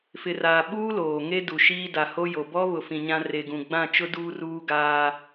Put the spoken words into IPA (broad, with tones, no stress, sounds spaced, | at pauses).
f ɪ˨ r aː˨ ɓ uː˦ l oː˨ ŋ e˦ d u˨ ʃ iː˦ d a˨ h o˦ j o˨ b ɔ˦ β ʊ˨ f ĩ˨ ɲ ã˦ r e˨ ɡ ũ˨ ɡ͡b ã˦˨ t͡ʃ ʊ˦ d uː˦ r uː˦ ɡ aː˦